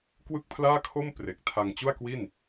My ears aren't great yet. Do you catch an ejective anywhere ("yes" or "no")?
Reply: no